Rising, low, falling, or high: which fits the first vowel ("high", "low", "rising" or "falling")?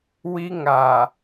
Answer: high